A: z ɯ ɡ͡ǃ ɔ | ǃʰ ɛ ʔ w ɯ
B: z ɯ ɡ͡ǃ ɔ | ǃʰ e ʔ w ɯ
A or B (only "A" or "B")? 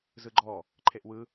B